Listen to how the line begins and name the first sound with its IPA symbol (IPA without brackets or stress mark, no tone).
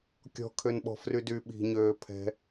kʲ